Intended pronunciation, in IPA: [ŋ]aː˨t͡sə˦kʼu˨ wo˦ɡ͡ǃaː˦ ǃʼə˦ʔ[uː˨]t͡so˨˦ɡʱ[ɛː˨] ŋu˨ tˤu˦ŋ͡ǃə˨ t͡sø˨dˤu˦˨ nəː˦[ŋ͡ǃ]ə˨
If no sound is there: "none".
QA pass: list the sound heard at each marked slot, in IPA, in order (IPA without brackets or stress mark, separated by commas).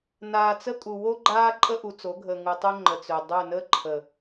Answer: n, u˨, əː˨, ǃʰ